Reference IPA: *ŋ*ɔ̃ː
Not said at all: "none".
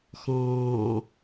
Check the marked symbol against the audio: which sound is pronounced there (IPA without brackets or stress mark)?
x